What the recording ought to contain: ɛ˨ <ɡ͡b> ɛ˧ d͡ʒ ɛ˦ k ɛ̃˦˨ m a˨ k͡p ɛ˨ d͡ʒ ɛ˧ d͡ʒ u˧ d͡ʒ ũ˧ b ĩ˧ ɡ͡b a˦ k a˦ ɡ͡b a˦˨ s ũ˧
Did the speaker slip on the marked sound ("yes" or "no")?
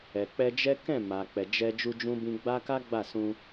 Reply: yes